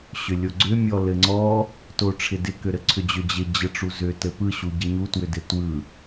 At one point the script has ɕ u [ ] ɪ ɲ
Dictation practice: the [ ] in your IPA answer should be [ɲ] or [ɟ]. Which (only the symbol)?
ɟ